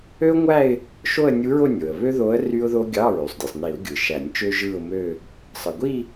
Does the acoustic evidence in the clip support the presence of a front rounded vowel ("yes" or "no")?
yes